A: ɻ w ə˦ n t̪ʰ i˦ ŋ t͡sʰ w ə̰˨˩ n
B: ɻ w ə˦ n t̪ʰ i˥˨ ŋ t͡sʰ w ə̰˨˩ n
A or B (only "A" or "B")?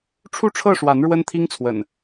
A